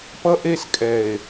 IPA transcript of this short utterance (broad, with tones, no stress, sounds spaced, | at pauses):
p ʌ˦ ʔ e˦ s kʼ ɛ˨ e̯